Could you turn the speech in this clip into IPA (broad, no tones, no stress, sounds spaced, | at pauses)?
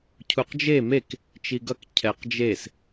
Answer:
cʰ u q d͡ʒ e m e k | t͡ʃ i ɡ ʌ k cʰ ɛ q d͡ʒ e s